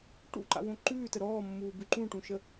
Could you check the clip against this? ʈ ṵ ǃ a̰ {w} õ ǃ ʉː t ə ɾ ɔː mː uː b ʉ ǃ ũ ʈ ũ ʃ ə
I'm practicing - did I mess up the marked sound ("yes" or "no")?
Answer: no